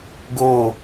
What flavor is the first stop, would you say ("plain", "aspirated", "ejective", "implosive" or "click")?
plain